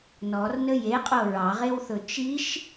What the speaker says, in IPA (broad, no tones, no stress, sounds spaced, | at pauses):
n ɔ r n ə j e qʼ o ɹ ɑ ʁ e w θ ɵ t͡ʃ i ʃ